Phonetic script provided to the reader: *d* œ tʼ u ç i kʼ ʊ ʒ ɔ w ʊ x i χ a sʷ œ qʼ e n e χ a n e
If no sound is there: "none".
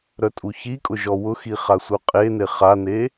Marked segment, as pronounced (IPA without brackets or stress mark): ɾ